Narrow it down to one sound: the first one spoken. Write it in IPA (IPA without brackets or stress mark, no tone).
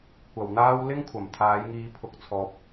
kʷ